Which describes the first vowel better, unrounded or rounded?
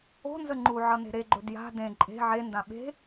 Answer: rounded